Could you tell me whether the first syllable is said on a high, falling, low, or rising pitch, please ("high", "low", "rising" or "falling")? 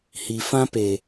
low